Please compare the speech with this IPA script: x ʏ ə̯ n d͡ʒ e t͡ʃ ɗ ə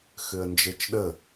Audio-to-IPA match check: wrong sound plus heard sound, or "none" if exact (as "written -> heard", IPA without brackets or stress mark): none